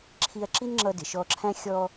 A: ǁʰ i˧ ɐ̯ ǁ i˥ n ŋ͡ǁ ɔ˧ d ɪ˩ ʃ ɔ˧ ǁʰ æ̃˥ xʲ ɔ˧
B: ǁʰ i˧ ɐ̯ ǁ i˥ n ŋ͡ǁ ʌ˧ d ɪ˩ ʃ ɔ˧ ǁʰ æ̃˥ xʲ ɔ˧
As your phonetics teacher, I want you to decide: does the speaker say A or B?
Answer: B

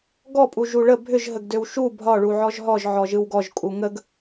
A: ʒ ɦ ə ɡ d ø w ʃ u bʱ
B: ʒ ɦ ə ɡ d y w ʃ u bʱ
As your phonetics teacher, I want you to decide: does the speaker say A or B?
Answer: A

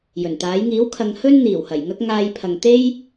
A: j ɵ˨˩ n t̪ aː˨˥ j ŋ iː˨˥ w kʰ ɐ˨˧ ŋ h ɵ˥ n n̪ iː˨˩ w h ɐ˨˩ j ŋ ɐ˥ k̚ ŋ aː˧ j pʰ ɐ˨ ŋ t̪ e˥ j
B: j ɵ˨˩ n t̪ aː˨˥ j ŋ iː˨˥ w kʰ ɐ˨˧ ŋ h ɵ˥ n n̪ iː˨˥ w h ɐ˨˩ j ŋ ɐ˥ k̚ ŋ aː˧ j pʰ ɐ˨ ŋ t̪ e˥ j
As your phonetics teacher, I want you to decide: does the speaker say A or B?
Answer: A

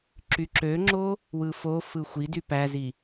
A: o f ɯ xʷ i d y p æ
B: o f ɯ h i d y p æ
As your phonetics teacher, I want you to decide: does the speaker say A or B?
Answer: A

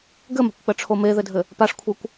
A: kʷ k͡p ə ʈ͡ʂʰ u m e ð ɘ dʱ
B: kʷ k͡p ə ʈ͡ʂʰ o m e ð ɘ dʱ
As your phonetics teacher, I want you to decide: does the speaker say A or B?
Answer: B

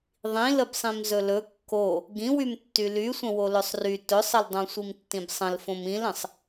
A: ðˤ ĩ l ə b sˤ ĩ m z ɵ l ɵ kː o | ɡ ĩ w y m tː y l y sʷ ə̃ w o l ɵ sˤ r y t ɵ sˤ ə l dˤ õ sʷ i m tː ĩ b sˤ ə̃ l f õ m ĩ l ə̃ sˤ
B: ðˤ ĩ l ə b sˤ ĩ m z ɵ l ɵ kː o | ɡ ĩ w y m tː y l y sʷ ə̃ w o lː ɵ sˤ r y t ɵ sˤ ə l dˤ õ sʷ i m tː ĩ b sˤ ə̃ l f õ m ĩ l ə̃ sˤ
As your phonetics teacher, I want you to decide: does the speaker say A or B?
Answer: A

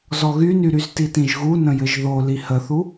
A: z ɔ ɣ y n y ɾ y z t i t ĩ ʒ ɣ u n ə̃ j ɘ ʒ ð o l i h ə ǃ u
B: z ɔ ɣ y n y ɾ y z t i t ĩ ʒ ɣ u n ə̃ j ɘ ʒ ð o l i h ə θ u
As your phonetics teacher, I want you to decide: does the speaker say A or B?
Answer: B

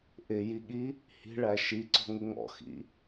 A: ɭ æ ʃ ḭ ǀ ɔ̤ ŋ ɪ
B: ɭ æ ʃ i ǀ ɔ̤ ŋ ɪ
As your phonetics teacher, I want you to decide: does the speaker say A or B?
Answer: B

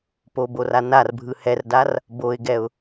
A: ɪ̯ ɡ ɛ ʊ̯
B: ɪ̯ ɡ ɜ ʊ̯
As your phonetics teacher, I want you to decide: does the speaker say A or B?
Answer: A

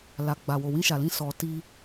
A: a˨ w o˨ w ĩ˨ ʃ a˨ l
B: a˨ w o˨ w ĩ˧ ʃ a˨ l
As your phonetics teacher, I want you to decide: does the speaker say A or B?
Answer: B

